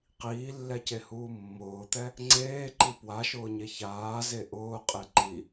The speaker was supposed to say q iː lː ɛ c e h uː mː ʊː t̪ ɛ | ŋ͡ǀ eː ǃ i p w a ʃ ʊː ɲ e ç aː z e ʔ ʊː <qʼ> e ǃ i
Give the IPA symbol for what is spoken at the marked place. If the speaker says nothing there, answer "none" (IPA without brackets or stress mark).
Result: qʼ